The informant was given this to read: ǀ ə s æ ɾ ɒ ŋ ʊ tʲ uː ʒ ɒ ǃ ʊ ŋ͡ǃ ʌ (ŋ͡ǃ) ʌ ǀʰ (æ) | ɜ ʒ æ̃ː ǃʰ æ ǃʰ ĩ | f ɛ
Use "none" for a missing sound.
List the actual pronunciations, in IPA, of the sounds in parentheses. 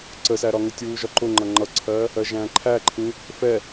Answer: ŋ͡ǃ, ɜ

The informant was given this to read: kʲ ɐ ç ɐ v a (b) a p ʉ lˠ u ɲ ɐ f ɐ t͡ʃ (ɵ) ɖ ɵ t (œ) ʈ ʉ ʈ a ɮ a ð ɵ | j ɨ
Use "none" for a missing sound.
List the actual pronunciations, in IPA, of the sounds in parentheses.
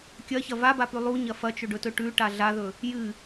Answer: b, ɵ, ɵ

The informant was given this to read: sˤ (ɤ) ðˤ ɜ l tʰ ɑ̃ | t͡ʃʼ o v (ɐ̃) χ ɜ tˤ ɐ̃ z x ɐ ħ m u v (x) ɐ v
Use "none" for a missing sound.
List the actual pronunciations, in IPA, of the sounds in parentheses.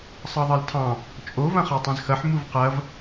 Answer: ɤ, ɐ̃, q

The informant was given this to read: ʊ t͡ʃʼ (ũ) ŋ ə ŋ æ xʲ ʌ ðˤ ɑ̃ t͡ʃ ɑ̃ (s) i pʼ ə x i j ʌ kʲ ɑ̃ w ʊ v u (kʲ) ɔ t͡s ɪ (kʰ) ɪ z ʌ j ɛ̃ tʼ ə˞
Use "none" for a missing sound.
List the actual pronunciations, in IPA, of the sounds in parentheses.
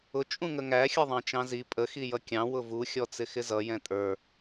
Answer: ũ, z, xʲ, x

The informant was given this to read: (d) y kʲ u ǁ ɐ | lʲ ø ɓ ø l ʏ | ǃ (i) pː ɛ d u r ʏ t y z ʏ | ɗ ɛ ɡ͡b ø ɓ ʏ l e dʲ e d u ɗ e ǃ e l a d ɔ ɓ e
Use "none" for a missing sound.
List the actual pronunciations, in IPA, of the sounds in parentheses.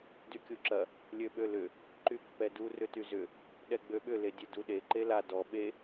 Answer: d, y

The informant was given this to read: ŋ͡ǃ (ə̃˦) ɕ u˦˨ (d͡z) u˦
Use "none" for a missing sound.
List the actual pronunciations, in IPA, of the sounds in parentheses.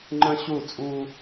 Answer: ə̃˦, t͡sʼ

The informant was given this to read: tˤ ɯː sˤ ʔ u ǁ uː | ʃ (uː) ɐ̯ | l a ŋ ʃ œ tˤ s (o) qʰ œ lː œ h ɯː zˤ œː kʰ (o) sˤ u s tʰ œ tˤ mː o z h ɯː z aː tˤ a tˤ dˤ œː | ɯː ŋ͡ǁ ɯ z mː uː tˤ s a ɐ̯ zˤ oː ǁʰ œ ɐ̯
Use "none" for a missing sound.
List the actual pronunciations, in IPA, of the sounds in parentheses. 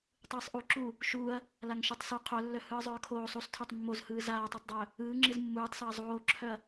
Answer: uː, o, oː

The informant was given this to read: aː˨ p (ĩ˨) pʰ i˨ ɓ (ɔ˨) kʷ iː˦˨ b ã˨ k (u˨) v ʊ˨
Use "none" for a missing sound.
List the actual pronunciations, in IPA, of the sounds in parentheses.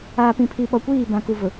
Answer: ĩ˨, ɔ˨, u˨

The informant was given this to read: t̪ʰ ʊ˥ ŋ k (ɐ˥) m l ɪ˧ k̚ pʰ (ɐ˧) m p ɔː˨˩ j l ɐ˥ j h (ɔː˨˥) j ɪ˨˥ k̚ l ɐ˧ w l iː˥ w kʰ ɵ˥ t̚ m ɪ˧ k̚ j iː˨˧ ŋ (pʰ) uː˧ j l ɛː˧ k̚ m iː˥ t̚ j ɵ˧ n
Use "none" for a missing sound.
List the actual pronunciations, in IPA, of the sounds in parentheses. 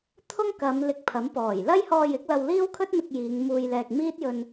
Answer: ɐ˨˧, ɐ˨˥, ɔː˧, m

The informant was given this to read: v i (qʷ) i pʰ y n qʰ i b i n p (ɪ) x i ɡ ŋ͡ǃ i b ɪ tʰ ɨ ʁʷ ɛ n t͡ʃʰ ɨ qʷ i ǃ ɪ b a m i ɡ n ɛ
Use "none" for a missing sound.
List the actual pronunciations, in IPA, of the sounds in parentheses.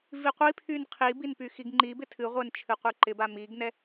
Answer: qʷ, y

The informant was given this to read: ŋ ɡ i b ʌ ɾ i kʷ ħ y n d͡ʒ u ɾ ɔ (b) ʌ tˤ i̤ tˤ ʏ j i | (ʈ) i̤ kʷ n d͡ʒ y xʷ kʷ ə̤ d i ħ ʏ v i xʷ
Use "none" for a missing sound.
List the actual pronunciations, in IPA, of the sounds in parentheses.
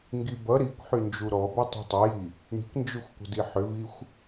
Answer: b, ɳ

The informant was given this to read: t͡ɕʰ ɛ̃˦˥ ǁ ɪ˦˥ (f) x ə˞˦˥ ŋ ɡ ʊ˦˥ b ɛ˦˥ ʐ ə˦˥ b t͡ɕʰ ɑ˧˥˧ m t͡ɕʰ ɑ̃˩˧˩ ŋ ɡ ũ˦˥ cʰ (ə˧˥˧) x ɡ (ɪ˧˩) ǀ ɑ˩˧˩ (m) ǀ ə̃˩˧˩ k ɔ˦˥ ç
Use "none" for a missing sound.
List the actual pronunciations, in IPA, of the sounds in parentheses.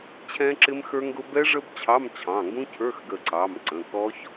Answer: m, ə˞˧˥˧, ə˧˩, m

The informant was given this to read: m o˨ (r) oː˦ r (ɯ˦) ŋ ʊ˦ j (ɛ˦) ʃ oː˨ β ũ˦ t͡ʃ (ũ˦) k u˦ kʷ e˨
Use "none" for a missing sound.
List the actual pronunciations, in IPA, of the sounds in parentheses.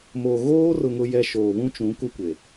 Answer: ɣ, ʊ˦, ɛ˦, ũ˨˦

